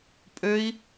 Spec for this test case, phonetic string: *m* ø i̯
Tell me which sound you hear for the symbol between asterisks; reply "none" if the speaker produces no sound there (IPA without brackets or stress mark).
pʼ